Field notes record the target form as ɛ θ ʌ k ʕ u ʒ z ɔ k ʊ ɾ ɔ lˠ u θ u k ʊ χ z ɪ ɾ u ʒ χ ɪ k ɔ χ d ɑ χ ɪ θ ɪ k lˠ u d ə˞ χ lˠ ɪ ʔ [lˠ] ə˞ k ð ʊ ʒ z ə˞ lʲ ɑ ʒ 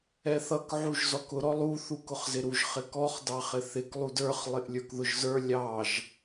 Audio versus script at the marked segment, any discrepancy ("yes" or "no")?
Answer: yes